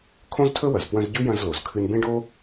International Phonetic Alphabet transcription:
kʰ õ˥ z tʰ ɵ˥ w ɐ˩ z p w ɐ̃˦ z ɟ ʉ˥ j ɐ̃˦ z l o˩ z kʰ ɨ˦ n b ẽ˥ ɖ o˥

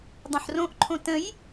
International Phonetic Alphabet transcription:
dˤ õ ħ r õ ʔ ǃʰ õ t ə̃ j

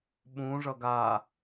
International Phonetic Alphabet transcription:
ɓ ũ ʐ ʌ ɡ a

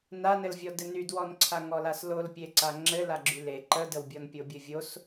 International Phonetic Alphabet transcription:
n a n ɘ l vʲ ɔ d ɘ n y d w ɔ n ǀʰ a ŋ ɔ l a s l o l pʲ e ǀ a ŋ͡ǁ ɘ l a ɡ͡ǁ y l e ǃ ə d ə w bʲ ɔ n pʲ o bʲ ɘ vʲ o s

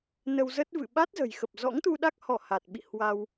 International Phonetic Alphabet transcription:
n ə˧ w z ə˦˥ t̚ v ɨ̰˧˨ ɓ a˦˥ t̚ z ə̤˨˩ j x ə˨˩ p̚ z ɔ̰˧˥ ŋ t̪ u˧ ɗ a˦˥ k̚ h ɔ˧˩ h a˨˩ t̚ ɓ ḭ˧˨ h w a˧ w

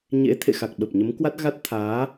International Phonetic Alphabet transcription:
ɲ ḛ˧˥ t̪ʰ ḛ˧˨ x a˨˩ k̚ ɓ ə˨˩ p̚ ɲ ə˨˦ m k w a˦˥ t̚ ɣ a˦˥ t̚ t̪ʰ aː˨˦

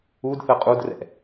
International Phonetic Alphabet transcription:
u d θ ə qʼ u d r ɛ̰

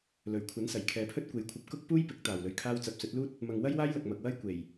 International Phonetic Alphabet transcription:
l ɵ˨˩ ɥ kʷʰ ɐ˨˥ n s ɐ˨˩ j kʰ ɛː˨ pʰ ɵ˥ t̚ kʷ e˨ j kʷʰ ɐ˧ p̚ k ʊ˥ k̚ p uː˥ j p ɪ˨˥ k̚ t̪ aː˨ w l ɵ˧ ɥ kʰ aː˥ w t͡s ɐ˨˥ p̚ s ɵ˨˥ t̚ l uː˥ t̚ | m ɐ˨ ŋ w ɐ˥ j w aː˥ j l ɐ˨ k̚ m ɐ˨ k̚ w ɐ˥ j kʷ e˨˩ j

